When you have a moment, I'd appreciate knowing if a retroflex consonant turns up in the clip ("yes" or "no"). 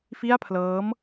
no